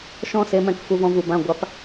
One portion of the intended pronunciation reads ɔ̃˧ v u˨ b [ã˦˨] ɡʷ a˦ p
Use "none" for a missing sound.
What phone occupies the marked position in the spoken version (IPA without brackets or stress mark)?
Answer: ã˦˨